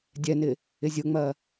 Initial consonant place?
alveolar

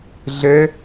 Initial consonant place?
alveolar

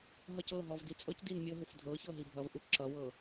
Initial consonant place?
glottal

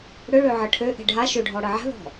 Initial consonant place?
retroflex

